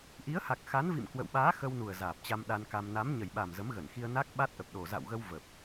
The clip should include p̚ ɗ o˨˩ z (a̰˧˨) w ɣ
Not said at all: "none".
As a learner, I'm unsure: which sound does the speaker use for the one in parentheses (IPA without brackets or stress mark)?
a̰˧˨